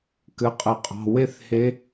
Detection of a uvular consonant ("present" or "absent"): present